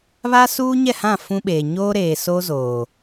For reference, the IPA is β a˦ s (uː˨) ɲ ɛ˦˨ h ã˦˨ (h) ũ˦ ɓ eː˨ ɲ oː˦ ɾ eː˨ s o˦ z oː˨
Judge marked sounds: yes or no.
no, no

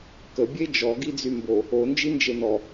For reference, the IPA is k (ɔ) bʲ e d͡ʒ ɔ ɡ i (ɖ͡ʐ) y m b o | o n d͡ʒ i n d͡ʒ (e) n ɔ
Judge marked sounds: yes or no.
no, no, yes

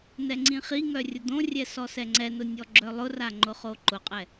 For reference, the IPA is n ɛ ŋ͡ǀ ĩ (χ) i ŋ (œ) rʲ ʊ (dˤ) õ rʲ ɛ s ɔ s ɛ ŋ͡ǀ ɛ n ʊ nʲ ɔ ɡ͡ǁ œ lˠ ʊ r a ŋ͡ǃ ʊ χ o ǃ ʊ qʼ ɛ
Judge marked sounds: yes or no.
yes, yes, no

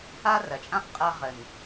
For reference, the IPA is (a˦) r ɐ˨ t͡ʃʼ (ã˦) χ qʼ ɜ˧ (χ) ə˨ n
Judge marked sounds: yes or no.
yes, yes, no

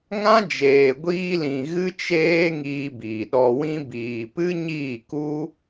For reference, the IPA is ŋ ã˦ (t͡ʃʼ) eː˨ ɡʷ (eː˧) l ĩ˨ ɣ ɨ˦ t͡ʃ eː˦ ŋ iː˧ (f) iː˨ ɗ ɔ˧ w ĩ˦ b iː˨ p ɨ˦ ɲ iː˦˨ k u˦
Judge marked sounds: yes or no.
no, no, no

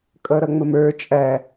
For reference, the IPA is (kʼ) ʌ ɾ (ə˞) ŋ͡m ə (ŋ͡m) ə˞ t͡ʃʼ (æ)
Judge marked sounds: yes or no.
yes, no, no, yes

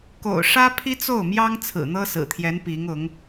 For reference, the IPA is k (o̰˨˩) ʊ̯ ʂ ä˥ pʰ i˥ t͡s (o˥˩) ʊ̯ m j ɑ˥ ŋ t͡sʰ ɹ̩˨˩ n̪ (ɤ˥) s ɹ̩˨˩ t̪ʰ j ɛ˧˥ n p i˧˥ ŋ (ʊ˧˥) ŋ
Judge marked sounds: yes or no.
yes, yes, yes, yes

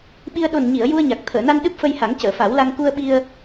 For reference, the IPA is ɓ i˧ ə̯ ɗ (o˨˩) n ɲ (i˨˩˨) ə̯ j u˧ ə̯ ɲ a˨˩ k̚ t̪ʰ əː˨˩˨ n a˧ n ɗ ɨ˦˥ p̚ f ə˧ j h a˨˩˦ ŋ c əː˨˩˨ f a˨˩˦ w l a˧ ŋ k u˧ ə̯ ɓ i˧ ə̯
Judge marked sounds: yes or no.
yes, yes

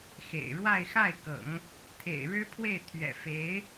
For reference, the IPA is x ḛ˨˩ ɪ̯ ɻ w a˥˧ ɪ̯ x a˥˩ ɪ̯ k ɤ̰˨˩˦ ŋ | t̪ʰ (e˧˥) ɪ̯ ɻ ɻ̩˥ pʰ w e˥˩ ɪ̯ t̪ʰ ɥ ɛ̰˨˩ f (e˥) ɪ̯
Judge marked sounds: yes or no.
no, no

